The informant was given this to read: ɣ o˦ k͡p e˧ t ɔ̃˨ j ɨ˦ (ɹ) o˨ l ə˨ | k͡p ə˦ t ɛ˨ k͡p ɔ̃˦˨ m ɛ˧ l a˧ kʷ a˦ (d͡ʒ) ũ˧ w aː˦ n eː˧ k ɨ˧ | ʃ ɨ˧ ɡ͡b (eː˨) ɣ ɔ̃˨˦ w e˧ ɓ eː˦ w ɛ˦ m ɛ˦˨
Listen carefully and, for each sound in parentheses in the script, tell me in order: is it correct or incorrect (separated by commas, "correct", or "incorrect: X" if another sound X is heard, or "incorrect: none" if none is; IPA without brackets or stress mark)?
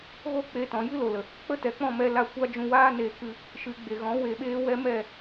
incorrect: l, correct, incorrect: e˨